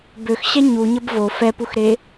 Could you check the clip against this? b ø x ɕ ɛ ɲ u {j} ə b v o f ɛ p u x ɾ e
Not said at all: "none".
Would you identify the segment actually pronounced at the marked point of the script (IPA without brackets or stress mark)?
ɲ